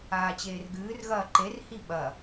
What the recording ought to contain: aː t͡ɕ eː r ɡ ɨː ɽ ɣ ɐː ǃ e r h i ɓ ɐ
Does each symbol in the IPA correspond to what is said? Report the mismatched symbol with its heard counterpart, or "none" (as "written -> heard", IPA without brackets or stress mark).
ɽ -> r